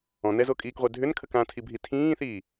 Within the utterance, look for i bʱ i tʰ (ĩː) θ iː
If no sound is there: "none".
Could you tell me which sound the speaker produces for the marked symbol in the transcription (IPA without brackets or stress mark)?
ĩː